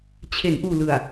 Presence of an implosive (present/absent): absent